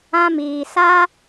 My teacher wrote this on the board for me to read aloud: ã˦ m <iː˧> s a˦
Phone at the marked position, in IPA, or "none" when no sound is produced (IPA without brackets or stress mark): iː˧